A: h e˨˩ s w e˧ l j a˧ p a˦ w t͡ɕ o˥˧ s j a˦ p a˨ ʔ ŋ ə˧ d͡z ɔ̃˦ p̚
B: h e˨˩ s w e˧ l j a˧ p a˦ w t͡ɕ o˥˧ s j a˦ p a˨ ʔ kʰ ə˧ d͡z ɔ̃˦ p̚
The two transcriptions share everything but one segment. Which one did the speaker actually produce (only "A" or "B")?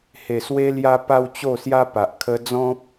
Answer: B